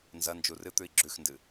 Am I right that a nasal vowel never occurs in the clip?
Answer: yes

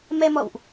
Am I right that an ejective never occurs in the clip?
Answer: yes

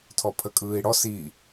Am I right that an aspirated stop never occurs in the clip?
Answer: no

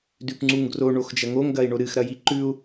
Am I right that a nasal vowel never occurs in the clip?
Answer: yes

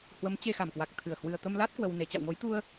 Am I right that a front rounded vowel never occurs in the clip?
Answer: yes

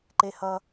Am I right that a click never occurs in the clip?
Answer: no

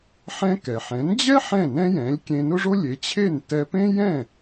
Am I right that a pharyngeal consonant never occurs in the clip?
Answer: no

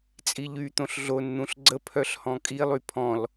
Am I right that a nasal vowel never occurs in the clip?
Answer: no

